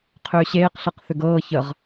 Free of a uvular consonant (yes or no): no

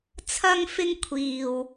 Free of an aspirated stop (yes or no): no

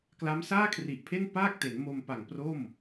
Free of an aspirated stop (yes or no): no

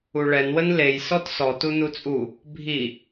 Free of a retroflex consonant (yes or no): no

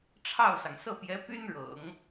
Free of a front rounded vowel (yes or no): no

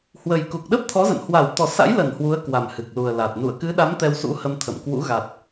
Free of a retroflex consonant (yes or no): yes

